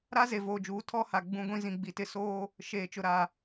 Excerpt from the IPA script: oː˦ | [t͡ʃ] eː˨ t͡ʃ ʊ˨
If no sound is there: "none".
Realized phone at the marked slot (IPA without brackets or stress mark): ʃ